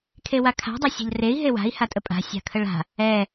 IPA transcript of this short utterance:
kʰ e w a kʰ a̤ dˤ a sʲ a̤ ʎ r e i̯ ɦ e w a̤ i̯ h a tʼ ə pʼ a̤ sʲ a̤ kʰ ə ɭ a̤ | ɛ

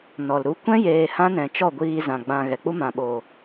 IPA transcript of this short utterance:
n ɔ˨ l ɾ u˧ kʷ ɛ̃˦ j eː˨ h ã˦ n ɛ̃˨ t͡ʃ ɔ˦˨ ɡʷ iː˧ z ã˨ ɡ͡b ã˨ ɣ ɛ˨ k͡p u˦ m ã˨ ɓ oː˨

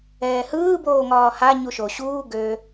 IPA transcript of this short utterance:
ɛː h ɯː b oː ŋ ɒː h a ɲ u ʃ o ɕ uː ɡ ø

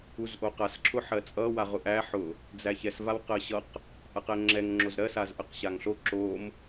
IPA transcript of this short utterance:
u z ʔ o q a s ǁʰ ʊ ħ ɜ t͡sʼ ʌ w a ʁ ʊ ʔ æ ħ ʊ | d͡z æ ç ɛ s v a w q ɜ ɕ ʌ q | ʔ a q ɛ ŋ͡ǁ ɛ ŋ ŋ͡ǁ o z ɾ ɜ s a z ʔ ɜ q ɕ a ŋ ɬ o ǁ o m

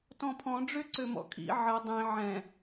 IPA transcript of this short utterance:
t ɔ̃ pʰ ɔ̃ ɖ͡ʐ ø ǀ ø m ɔ̰ kʰ ḭ ʕ ə dˤ ĩ ʕ ɛ̃

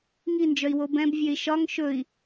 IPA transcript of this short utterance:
ŋ i n d͡ʒ œ i̯ w o b ɛ̃ b vʲ ø i̯ ʃ ɒ ŋ ʃ ɵ i̯

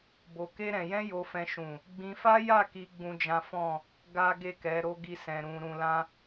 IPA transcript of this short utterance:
b o˧ k e˦ ɾ ɛ̃˧ j ɛ̃˦ j o˧ f ɛ̃˧ ʃ ũ˨ | ɡ͡b ĩ˧ f a˦ j a˦˨ k i˧ ɡ͡b ũ˦ d͡ʒ ã˦ f ɔ̃˦˨ | ɡ a˦ ɡ e˦˨ k ɛ˨˦ ɾ o˦ ɡ i˦ s ɛ̃˧ ɾ ũ˧ ɾ ũ˧ l ã˦

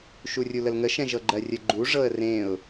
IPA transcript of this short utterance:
ʃ u rʲ u l ə l ŋ ə ʃ ɛ̃ ʒ ɤ ɡ͡ǃ ɜ rʲ ə ɡ͡ǃ u ʐ ɤ ə̯ r ẽ ʊ̯

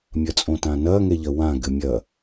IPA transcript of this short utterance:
mʲ ɐ t͡sʼ õ t ã n ɐː ŋ ɛ ʎ ɐ w ã ɡ ɘ mʲ ɐ

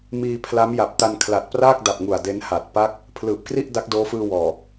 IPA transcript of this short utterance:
m iː˧ pʰ l a˦˥ m j a˨˩ p̚ t a˧ n kʰ l a˨˩ t̚ p r aː˥˩ k̚ d a˨˩ p̚ ŋ u˨˩ a̯ d e˦˥ n h a˨˩ t̚ p a˦˥ k̚ | pʰ l ɯː˨˩ p̚ k r i˥˩ ʔ d a˦˥ k̚ d oː˦˥ f ɯː˧ w ɔː˨˩

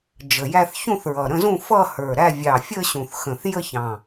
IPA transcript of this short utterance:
d͡ʒ ə˨˩ j æ˥˧ θ ç ũ˥˧ θ ɹ ʌ˨˩ ɾ ə̃˥˧ z ũ˥˧ f ʌ˥˧ h ə˞˨˩ ɾ æ˥˧ vʲ ɑ˨˩ fʲ ə˥˧ ɕ ũ˨˩ θ x ə̃˨˩ θ j ə˥˧ ç ɑ̃˨˩

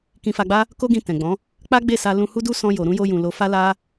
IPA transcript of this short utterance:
k ĩ˧ f a˧ ɡ͡b a˦ | k o˦ ɡ ĩ˧ t ɛ̃˨ ɡ͡b ɔ̃˨˦ | k͡p a˦ ɡ͡b e˦˨ s a˧ l ũ˧ h u˦ d u˦ s ɔ̃˧ j o˨ ɾ ũ˧ j o˧ j ũ˨ l o˨ f a˧ l a˦

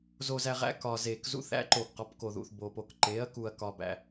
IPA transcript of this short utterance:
z o˨ z æ˨ ʁ æ̰˨˦ k ɒ˨ z e˨ k z ṵ˨˦ θ æ̰˨˦ ǃ o˨ ɡ q ɒ˨˦ p k o˨ ð ṵ˨ θ b o˨ p o˨ k ǃ e˨˦ ɐ̯ k u˨ ɐ̯ k ɒ˨ b æ̰˨

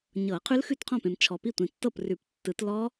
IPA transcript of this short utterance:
ɲ ɤ˨˩˦ qʰ ʉ˦˥ l x ʉ˥˩ t qʰ ɔ̃˥˩ p ẽ˨ m t͡ʃʰ ɔ˨ p i˥˩ tʷ ĩ˨ tː ɤ˥˩ p r ʉ˨˩˦ p tː ɯ˨˩˦ t l ɔ˦˥

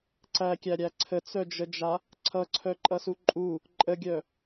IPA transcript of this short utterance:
ǀ æ kʲ æ ɾʲ æ ǀʰ ə t͡s œ d͡ʒ ə d͡ʒ a | ǀʰ ʌ ǀʰ œ ǃʼ ʌ s u ǃʼ u | ǃʼ ə ɡʲ œ

